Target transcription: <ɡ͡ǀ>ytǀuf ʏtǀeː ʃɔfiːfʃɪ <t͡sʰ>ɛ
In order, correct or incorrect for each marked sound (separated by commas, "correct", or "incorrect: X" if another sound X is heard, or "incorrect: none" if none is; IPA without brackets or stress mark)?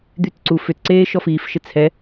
incorrect: d̪, correct